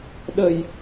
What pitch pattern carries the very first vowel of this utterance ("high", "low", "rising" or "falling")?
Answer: low